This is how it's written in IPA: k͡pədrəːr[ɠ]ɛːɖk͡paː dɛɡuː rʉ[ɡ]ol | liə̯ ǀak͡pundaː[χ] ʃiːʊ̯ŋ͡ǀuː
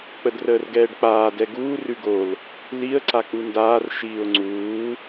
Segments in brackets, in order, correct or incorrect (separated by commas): incorrect, correct, incorrect